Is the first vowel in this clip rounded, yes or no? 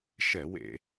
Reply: no